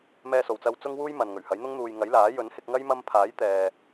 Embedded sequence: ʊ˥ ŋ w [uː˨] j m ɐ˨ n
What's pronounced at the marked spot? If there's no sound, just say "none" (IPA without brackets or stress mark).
uː˥